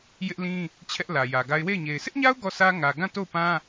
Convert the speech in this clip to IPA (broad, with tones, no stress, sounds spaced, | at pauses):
j ɪ˦ ʔ l ĩ˦ | t͡ɕʰ ɛ˦ ʔ l ä˨ j ä˨ ɡ a˦ ɪ̯ w e˦˨ ɪ̯ ɲ e˨ ɪ̯ sʰ ɪ˦ ʔ ɲ a˦ ʊ̯ ɡ ɔ˦˨ s ä˦ ŋ ä˨ ɡ ã˦˨ t o˦˨ ʊ̯ p ã˦